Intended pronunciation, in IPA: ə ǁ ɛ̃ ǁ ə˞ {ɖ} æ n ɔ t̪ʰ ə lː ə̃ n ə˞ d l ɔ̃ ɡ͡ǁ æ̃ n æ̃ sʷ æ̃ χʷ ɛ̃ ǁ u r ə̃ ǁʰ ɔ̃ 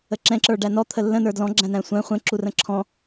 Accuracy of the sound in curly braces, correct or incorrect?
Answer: correct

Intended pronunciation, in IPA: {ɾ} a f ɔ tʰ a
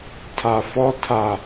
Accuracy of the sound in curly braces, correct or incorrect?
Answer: incorrect: tʰ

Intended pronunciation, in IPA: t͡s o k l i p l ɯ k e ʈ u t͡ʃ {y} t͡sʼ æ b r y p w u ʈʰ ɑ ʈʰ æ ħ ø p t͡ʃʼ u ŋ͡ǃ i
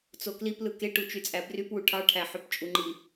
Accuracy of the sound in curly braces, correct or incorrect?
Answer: correct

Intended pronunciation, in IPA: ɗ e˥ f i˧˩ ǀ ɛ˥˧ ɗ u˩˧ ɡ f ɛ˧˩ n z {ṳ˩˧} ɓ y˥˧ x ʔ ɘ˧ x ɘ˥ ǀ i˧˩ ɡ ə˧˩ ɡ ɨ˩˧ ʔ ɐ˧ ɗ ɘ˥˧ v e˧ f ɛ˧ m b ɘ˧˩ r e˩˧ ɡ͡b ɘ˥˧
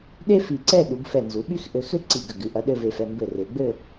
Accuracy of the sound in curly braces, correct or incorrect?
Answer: incorrect: u˩˧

